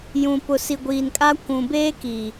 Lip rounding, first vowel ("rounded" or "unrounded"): rounded